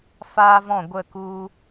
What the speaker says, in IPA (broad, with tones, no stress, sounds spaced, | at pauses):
f aː˦ v ɔ̃˦˨ ɡʷ ə˦˨ k u˧